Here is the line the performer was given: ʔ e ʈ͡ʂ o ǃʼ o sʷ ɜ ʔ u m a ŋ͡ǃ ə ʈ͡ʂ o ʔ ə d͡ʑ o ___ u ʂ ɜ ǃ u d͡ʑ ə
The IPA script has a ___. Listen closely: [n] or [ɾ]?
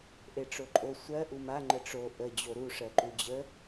ɾ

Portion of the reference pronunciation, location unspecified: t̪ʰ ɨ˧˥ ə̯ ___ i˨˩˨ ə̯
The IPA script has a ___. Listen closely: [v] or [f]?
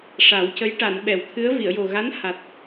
v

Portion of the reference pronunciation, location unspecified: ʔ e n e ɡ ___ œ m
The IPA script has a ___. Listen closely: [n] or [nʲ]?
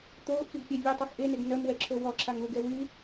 n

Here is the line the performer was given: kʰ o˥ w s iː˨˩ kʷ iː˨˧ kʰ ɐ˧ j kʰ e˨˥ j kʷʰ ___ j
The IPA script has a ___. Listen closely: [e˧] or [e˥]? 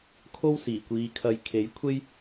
e˥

